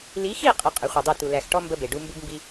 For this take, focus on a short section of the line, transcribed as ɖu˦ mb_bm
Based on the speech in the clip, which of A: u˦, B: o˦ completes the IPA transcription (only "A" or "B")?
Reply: A